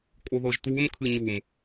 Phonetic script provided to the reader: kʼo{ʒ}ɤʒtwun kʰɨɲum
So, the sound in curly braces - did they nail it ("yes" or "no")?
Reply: no